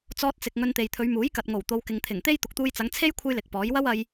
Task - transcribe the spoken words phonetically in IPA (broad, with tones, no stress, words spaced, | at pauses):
t͡sɔː˧t̚t͡sɪ˨k̚ ŋɵ˧nt̪e˨jt̪ʰɵ˨˧ɥ muː˨˥jkɐ˨t̚ŋo˨˩w t̪o˨˧wkɪ˨ŋt̪ʰɪ˨˩ŋt̪e˥j t̪ʊ˨k̚t̪uː˧jt͡sɐ˨˧ŋt͡sʰe˥j kʷʰɐ˥jlɪ˨k̚pɔː˨˥j wɐ˥wɐ˧j